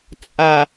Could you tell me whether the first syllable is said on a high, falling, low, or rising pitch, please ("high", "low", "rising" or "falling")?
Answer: low